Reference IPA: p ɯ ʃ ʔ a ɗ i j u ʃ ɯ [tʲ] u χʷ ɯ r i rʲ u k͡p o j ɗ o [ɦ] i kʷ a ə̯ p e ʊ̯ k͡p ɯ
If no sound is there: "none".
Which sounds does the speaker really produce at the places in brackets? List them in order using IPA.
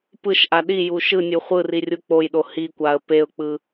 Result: nʲ, h

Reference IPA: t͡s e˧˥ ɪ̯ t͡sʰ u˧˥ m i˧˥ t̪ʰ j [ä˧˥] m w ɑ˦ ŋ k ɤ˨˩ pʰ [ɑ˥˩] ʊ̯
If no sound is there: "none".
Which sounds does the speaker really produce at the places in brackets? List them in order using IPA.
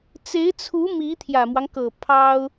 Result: ä˨˩, ɑ˥

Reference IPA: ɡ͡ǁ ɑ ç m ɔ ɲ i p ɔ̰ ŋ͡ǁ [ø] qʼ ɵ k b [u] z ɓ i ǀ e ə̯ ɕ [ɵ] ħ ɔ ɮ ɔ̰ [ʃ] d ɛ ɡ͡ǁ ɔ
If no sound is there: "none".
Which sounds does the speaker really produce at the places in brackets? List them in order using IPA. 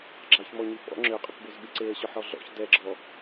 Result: ø, o, œ, ç

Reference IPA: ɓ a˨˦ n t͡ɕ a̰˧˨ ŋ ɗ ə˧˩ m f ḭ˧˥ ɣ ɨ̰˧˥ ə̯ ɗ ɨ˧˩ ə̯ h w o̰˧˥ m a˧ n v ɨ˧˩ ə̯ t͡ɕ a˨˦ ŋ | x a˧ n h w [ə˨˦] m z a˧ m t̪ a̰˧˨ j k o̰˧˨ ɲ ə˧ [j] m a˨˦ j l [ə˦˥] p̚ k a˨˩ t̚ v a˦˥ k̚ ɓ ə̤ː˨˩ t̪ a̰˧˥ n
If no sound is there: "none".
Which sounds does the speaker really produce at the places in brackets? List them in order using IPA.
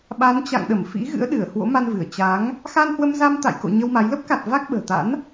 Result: ə˧, w, ə˦˥

